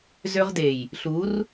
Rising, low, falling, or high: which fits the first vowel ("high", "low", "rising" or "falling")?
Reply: high